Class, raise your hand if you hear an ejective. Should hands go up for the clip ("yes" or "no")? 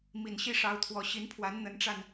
no